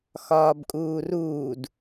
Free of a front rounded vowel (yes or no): yes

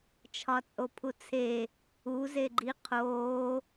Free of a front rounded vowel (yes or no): yes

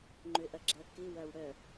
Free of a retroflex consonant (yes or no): no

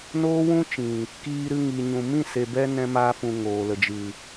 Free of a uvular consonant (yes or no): yes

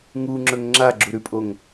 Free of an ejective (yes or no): no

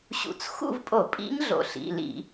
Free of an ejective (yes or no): no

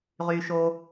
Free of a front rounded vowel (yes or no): no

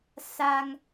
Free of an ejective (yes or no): yes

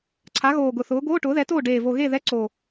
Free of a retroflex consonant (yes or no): no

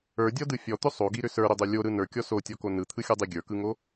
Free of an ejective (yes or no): yes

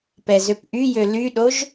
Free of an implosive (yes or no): no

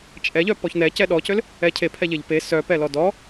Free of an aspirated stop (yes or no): no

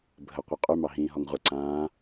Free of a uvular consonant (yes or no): no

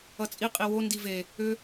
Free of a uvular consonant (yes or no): no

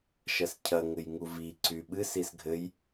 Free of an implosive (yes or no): no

